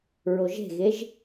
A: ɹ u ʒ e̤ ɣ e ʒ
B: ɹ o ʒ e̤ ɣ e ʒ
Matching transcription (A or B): B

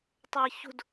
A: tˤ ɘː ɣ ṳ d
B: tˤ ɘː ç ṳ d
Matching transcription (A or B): B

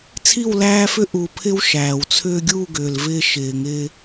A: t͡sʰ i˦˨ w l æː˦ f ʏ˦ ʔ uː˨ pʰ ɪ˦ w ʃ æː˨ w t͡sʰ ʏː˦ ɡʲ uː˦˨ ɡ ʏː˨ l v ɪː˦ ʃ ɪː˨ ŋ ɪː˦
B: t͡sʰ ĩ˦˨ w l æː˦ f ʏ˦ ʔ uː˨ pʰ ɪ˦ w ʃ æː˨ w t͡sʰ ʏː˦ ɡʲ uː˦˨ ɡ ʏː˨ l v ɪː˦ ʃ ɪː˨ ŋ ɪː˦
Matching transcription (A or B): A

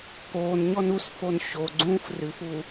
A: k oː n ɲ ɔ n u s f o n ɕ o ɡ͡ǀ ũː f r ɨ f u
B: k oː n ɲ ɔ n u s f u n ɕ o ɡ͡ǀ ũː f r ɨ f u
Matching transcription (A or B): A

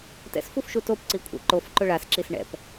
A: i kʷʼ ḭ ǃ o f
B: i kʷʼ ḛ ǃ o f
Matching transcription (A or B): B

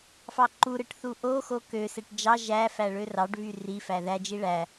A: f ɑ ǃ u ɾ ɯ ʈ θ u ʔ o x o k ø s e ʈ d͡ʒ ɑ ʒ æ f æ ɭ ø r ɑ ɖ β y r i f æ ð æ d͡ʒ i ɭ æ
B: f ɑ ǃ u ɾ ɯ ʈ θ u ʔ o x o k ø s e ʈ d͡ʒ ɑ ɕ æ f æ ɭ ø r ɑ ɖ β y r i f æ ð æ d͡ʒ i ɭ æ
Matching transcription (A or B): A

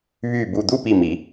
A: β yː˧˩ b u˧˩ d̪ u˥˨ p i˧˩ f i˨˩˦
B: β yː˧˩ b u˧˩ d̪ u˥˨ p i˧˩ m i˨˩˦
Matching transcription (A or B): B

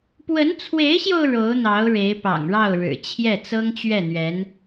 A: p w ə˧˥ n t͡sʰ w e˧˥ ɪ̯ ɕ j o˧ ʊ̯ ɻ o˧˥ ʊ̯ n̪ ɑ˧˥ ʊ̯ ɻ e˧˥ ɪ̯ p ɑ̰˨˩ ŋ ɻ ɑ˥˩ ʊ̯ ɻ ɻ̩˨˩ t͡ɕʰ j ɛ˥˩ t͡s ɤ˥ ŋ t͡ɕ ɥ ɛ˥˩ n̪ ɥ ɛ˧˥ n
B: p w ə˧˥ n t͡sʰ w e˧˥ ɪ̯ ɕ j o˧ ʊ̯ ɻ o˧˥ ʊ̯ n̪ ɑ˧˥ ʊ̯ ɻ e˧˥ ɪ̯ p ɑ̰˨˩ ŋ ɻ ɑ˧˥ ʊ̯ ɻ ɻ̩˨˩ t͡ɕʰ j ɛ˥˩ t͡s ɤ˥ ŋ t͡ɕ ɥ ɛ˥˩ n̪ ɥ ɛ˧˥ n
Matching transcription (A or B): A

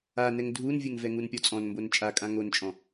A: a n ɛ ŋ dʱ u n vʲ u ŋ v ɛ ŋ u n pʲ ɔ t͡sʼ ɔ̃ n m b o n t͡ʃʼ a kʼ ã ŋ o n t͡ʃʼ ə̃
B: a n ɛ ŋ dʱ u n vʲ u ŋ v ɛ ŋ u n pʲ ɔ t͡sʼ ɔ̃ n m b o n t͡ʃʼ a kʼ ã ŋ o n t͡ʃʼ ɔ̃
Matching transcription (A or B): B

